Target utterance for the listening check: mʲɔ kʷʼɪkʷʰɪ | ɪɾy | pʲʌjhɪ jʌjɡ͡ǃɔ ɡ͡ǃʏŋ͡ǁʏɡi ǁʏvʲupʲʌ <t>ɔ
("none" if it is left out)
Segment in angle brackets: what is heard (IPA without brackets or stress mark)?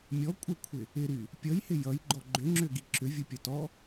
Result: t